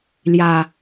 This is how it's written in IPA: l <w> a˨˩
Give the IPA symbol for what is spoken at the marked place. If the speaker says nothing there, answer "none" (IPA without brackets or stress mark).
j